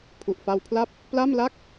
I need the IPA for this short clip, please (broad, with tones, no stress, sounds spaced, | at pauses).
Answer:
pʰ u˨˩ ʔ f a˧ w pʰ l a˥˩ p̚ | p l a˥˩ m l a˥˩ k̚